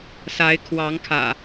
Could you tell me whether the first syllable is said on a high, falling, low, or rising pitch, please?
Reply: rising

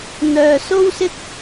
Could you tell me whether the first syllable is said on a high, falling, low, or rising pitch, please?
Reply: low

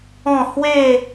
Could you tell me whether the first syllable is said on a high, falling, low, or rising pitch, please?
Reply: falling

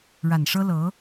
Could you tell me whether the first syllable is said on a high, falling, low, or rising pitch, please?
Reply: low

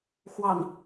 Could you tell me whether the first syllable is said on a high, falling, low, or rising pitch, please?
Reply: low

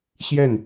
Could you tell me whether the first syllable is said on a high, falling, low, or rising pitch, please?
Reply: falling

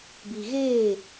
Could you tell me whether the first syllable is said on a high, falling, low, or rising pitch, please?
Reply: low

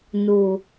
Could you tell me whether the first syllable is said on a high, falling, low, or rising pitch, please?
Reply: low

